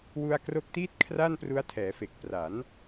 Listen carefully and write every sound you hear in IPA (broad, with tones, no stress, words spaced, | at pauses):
wu˧a̯kro˦˥k̚tiː˥˩t̚ kʰra˥˩npru˦˥a̯tʰɛː˩˦ fe˨˩k̚pra˩˦n